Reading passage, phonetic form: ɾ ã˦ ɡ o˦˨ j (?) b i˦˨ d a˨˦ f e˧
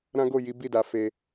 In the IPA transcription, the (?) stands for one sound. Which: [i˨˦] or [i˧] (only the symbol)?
i˨˦